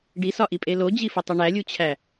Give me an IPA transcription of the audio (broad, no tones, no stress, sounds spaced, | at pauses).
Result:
ɖ i s ɒ ʔ i pʼ e l o d͡ʑ i f o tˤ u ɳ æ lʲ u t͡ɕʰ æ